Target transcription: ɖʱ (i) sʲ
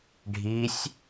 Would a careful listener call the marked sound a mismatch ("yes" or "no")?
no